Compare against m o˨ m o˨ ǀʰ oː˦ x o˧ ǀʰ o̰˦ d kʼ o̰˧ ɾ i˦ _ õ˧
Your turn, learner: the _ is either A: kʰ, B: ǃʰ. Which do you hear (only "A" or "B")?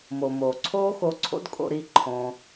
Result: B